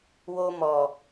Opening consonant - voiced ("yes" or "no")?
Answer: yes